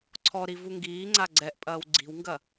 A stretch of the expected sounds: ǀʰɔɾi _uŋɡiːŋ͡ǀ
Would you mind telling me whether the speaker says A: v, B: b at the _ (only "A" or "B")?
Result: A